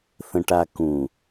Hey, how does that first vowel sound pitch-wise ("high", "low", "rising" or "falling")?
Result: low